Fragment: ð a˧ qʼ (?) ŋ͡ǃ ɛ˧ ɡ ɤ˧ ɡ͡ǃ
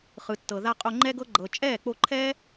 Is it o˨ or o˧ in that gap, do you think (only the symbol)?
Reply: o˧